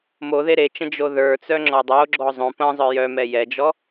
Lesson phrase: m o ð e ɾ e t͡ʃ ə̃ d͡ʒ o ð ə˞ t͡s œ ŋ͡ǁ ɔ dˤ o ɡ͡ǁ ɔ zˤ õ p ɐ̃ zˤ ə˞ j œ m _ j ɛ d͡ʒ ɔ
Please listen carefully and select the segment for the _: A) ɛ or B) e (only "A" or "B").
A